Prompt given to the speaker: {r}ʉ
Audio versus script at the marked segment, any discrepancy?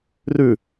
no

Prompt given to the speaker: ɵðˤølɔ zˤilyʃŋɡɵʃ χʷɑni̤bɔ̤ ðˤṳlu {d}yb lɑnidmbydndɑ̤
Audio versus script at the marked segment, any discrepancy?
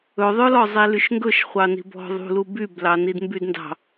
yes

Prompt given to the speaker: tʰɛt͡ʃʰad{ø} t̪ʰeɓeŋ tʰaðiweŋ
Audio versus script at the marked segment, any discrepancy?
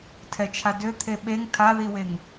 no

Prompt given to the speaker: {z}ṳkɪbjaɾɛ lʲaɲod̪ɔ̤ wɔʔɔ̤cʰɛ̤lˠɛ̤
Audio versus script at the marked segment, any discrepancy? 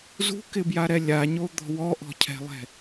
no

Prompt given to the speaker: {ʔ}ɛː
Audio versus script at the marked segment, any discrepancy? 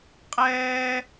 yes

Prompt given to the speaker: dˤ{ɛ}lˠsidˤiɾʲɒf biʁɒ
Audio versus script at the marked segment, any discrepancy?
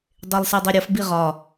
yes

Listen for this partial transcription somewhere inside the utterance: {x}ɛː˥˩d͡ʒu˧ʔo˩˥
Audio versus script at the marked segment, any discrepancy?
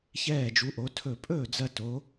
yes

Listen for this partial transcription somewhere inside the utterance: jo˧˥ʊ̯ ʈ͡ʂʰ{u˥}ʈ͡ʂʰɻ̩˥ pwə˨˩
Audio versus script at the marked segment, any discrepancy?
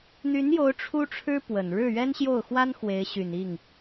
no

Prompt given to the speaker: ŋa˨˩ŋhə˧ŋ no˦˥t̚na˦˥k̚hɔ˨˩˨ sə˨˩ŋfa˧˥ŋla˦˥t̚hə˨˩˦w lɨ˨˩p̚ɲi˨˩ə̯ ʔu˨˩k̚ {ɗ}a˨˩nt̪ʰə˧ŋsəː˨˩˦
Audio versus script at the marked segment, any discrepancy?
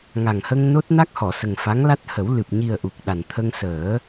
no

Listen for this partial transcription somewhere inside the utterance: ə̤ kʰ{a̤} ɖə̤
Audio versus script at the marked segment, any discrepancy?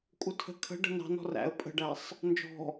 yes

